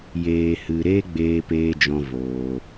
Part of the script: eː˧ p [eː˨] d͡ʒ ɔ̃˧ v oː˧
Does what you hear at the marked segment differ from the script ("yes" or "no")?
yes